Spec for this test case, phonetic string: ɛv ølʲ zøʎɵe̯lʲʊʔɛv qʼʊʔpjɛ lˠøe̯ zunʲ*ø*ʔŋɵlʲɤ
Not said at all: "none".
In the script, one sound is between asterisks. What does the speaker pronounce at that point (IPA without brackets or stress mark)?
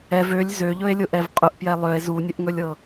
ɵ